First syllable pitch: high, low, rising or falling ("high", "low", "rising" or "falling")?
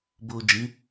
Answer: low